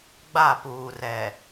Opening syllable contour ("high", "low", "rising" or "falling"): falling